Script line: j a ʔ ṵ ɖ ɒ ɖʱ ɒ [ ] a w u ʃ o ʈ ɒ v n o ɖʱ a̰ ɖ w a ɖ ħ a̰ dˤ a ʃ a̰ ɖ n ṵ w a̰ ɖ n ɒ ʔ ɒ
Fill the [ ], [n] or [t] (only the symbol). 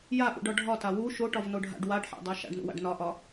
t